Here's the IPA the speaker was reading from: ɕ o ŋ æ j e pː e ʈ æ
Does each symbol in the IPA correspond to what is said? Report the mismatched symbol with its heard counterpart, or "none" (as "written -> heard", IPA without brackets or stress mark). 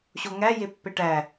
none